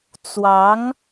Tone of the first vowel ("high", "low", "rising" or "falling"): rising